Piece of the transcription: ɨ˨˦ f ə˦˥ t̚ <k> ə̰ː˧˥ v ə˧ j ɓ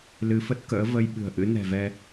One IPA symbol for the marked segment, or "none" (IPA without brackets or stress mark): k